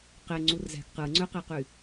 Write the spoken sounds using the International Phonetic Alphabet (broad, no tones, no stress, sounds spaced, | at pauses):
q e ŋ͡ǀ u r z æ̤ ɡ q ɯ ŋ͡ǀ ø q e q y